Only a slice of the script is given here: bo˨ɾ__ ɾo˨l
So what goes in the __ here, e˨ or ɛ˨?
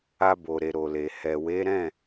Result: e˨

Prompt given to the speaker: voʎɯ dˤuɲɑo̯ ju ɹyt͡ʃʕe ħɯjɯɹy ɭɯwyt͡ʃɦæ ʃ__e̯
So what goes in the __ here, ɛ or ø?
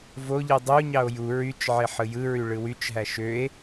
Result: ø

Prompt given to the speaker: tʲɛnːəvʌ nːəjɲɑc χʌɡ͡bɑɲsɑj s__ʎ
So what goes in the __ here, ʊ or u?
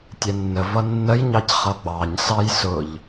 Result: ʊ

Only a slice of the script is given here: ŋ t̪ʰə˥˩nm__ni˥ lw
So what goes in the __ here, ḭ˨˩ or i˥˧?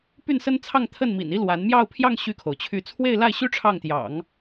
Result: ḭ˨˩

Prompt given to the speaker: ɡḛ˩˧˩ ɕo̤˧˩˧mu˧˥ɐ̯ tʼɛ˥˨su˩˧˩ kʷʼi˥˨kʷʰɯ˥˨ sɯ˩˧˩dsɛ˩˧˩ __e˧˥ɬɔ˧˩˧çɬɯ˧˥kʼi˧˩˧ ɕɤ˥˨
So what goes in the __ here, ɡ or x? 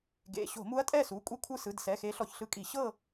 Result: x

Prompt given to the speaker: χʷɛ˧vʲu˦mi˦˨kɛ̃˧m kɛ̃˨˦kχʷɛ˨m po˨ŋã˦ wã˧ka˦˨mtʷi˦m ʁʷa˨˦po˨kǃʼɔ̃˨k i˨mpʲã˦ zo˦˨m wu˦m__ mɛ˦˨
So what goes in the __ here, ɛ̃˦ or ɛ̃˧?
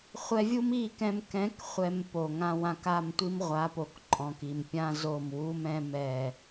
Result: ɛ̃˦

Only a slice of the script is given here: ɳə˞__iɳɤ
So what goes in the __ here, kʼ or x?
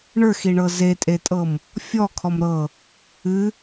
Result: x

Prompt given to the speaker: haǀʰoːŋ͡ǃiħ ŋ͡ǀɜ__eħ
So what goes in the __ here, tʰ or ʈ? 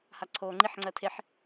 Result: tʰ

